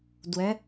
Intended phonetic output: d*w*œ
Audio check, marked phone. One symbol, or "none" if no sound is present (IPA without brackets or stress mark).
w